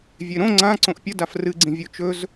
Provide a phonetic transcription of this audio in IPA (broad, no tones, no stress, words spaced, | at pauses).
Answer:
vʲeɾõ ŋ͡ǀã ǀõʔpʲə dafrɨɡ͡ǀĩ vʲot͡ʃɵz